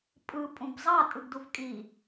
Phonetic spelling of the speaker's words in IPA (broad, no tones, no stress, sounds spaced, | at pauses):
pʼ ɯ pʼ ũ b zˤ ɑ tʼ ɯ ɡ d u v kʼ i